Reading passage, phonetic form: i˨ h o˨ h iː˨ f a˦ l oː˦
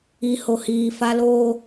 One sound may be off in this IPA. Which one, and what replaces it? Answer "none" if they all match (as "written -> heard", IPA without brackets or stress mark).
none